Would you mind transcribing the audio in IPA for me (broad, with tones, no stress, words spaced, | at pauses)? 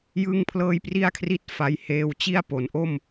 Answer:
jɯ˥˩ŋpʰlɤː˥˩j pri˥˩a̯kʰri˦˥t̚ fa˦˥j heː˧wt͡ɕi˥˩a̯ po˩˦nʔo˥˩m